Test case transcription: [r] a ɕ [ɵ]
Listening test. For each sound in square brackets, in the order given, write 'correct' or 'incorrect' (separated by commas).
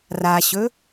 correct, correct